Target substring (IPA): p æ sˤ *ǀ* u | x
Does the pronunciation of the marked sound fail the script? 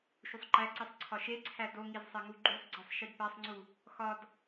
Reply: yes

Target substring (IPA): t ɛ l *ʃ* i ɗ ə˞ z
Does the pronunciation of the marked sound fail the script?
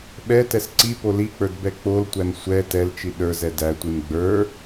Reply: yes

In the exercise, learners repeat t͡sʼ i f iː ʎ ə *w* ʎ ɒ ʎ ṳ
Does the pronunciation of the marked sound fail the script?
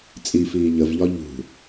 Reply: yes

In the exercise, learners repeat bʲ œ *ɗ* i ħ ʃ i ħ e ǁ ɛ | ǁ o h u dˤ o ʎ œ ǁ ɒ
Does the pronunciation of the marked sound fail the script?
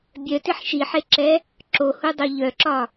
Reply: yes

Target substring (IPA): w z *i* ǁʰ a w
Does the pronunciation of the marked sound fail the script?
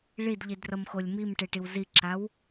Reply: no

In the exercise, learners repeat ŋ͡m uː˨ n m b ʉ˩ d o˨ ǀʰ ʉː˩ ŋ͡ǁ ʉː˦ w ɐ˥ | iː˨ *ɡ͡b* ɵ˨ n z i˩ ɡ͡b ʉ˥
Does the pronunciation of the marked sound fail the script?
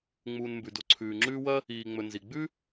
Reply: yes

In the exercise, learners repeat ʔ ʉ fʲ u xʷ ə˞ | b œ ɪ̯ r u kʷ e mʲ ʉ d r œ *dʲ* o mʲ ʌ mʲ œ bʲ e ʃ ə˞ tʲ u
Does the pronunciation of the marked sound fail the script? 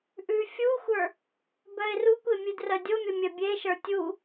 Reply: no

